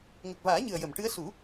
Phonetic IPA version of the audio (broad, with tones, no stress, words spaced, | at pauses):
ŋə˨˩k̚vaː˨˩˦ ɲɨ˨˩ə̯jə˨˩˨m ʈɨ˧˥ə̯ su˨˩˦